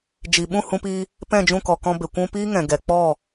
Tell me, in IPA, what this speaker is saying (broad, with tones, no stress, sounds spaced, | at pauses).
d͡ʒ i˨ ɓ ũ˦˨ h ũ˧ p iː˧ | p ɛ̃˦˨ d͡ʒ ũ˦˨ k ɔ˨ k ɔ̃˧ b e˨ kʷ ũ˧ p iː˦ ŋ ɛ̃˨ ɡ ɛ˨ k͡p ɔ˦˨